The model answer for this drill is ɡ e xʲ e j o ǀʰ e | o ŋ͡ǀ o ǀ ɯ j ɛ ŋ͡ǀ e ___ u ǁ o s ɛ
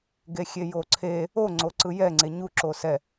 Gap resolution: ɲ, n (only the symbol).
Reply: ɲ